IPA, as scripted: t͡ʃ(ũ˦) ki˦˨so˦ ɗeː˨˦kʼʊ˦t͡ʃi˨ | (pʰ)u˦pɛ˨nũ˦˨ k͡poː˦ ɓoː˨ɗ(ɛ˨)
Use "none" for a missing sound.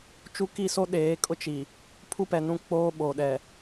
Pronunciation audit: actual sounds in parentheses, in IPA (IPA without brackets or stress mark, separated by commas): u˦, pʰ, ɛ˨